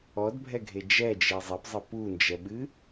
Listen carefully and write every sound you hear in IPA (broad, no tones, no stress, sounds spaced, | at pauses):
ɔ d bʱ ɛ ɡʱ e d͡ʒ ɛ d͡ʒ e zˤ e p zˤ ə p u n d͡ʒ ɛ ɓ ɨ